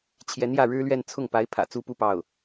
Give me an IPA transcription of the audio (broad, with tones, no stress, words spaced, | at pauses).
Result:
t͡ɕʰjɛ˧˥njä˥˩ɻɻ̩˥lɥɛ˥˧n t͡sʰʊ˥˩ŋpa˧˥ɪ̯pʰä̰˨˩ t͡su˥pu˥˧ pɑ˥˩ʊ̯